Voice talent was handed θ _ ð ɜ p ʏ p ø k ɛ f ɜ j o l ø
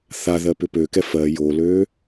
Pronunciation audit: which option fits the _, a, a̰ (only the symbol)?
a